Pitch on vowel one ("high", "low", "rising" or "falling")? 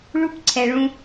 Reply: high